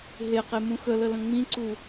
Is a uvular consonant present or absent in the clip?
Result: present